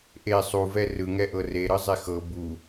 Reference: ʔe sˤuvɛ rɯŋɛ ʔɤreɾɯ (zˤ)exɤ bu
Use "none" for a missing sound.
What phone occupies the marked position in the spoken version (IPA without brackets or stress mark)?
zˤ